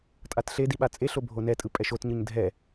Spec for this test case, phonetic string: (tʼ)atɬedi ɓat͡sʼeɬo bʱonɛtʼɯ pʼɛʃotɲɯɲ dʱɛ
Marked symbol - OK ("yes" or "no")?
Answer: yes